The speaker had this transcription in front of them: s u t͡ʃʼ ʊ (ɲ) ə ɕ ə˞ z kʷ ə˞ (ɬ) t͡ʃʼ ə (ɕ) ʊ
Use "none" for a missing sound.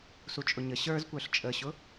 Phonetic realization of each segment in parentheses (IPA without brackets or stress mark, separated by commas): ɲ, ɬ, ɕ